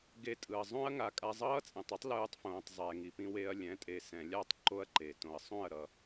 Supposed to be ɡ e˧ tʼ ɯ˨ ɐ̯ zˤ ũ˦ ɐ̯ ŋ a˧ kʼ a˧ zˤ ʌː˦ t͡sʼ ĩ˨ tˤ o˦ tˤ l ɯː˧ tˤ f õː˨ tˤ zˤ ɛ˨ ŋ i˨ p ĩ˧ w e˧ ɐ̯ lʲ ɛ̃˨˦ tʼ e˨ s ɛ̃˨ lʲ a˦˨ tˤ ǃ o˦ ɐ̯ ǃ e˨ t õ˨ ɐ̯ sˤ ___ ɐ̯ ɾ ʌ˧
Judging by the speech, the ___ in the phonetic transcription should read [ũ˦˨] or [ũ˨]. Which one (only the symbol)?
ũ˦˨